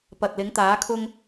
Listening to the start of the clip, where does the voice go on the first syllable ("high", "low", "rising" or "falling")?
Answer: low